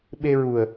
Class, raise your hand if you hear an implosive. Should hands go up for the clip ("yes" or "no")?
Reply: yes